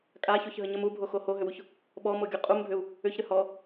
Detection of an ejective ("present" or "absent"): present